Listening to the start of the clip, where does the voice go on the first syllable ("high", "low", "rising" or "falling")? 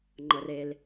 low